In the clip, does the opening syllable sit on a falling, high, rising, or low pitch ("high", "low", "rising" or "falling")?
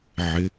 rising